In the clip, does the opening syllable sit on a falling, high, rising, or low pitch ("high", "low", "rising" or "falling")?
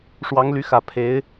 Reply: rising